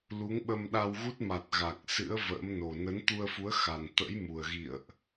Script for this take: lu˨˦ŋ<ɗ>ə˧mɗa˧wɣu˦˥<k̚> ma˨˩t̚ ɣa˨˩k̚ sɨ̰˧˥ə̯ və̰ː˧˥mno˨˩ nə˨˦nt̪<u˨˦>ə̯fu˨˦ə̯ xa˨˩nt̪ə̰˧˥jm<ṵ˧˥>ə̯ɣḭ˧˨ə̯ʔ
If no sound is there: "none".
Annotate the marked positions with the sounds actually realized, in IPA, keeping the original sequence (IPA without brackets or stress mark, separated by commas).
ɓ, t̚, u˧, u˨˩